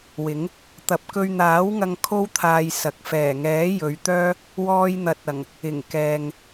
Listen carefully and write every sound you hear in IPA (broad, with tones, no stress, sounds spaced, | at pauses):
w ɪ˨˥ ŋ | t̪ ɐ˨ p̚ k ɵ˧ ɥ n̪ aː˨˥ w ŋ ɐ˧ ŋ kʰ o˥ w t̪ʰ aː˧ j s ɐ˨ k̚ f ɛː˨˩ ŋ ɛː˨˥ j ɵ˨˧ ɥ t̪ œː˥ | w ɔː˧ j n̪ ɐ˨ t̚ ɐ˨˩ ŋ | ɪ˨˩ ŋ k ɛː˨ ŋ